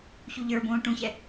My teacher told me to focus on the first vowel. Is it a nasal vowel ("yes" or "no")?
no